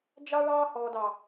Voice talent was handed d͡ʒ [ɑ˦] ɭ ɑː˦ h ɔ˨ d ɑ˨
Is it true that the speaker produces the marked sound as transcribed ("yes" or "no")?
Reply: yes